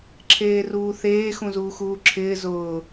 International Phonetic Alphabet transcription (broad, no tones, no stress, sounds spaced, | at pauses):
ǁʰ eː r uː θ eː x ũ z uː x uː ǁʰ ɪː z ʊː